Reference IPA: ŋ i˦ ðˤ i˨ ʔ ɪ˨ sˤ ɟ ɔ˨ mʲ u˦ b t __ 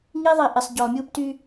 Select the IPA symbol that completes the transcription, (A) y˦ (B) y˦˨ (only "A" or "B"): A